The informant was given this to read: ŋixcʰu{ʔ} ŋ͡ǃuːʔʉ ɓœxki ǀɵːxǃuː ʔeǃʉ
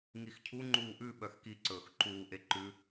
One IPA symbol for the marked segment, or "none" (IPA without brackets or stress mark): none